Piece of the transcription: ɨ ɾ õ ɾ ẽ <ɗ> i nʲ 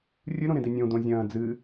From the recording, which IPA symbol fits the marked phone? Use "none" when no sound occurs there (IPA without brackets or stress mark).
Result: d